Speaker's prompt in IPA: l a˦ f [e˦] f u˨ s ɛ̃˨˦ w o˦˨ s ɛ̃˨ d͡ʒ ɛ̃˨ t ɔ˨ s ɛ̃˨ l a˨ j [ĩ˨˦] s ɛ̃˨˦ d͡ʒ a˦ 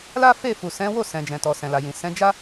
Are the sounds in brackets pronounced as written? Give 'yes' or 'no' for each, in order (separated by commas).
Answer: no, no